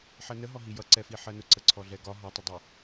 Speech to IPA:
ħ ɜ n ə ɦ ɔ ɦ i j ʌ ǀ ɛ f i ħ ɜ n ʊ ǀ ə ǀʰ ɔ ɮ ɛ ɡ ɒ ɦ ɒ tˤ ə dˤ ɪ

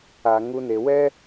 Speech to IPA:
a˧ ŋ u˦ n e˧ w ɛ˦

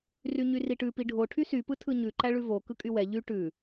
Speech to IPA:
r y ɲ y r i ʈ ʉ p i ɖʱ o ʈʰ y s y p ɯ tʰ ɯ ɲ ʉ ǃ æ ɭ ʉ v o k ɯ kʼ y w ɛ ʎ y ʈ ʉ

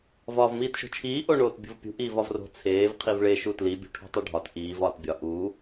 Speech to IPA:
v ɒː v m iː t ʃ o̤ t͡ʃʰ iː ʔ o ɳ oː t bʲ o̤ v pʲ ṳ ʔ iː v ɒ v r o̤ t͡sʰ eː v qʰ i v ɭ e ʃ u t l i bʲ ṳ ʈʰ o̤ tˤ u ɖʱ ɒ t ʔ iː v ɒː t bʲ ɒ ʔ uː

